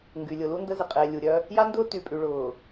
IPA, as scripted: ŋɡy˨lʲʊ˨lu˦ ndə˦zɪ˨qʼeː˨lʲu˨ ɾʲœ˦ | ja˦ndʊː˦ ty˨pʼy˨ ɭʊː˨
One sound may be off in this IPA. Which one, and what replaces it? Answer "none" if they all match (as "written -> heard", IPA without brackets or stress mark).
none